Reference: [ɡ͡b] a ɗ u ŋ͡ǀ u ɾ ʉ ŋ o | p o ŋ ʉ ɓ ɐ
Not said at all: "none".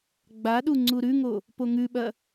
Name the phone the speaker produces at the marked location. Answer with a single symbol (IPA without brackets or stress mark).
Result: ɡ͡b